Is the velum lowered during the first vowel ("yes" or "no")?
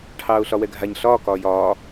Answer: no